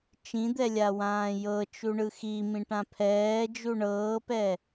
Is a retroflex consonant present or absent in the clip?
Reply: present